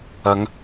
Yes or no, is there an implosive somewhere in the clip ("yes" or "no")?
no